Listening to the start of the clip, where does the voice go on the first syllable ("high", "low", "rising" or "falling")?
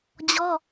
high